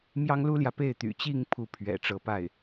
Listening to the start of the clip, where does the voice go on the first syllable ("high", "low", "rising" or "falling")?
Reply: high